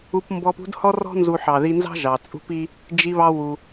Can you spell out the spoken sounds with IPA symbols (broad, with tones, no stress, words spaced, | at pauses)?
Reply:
u˧p mbɔ˧p ṳ˥dhɔ˥rɔ̤˥ nzu˧ħɑ˩ ði˧nzɑ̤˥ ʒɑ˩t͡sʼṳ˥pi˥ | d͡ʒi˧βɑ˧wu˩